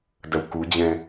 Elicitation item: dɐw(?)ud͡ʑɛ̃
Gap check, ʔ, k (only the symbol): k